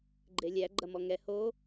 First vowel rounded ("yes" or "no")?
no